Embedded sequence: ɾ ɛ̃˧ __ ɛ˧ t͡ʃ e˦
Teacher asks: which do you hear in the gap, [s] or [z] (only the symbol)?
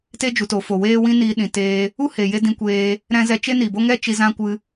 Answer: z